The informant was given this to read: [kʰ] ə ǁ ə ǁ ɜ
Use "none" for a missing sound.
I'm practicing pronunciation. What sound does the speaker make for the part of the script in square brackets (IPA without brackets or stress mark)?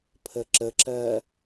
pʰ